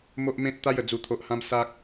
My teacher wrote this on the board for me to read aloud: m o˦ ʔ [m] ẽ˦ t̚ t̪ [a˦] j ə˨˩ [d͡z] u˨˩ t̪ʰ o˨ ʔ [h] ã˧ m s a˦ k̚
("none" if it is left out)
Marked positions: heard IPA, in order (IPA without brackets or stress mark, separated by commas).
m, a˦, d͡z, h